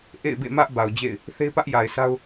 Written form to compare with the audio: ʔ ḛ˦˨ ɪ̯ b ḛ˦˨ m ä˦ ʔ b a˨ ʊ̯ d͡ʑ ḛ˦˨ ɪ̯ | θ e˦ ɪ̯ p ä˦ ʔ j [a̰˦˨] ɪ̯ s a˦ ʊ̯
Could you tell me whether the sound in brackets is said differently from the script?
yes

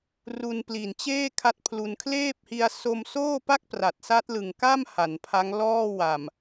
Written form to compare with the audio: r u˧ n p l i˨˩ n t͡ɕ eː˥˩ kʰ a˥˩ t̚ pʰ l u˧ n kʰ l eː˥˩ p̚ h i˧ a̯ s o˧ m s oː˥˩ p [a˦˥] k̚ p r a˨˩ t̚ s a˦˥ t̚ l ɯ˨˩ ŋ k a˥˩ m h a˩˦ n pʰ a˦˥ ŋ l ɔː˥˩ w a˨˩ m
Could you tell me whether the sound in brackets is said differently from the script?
yes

